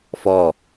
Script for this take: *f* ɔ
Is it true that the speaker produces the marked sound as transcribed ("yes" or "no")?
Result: yes